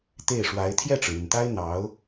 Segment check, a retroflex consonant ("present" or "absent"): present